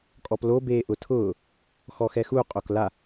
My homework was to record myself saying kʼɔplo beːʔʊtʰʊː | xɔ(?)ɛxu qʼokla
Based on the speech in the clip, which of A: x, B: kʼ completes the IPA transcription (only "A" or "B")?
A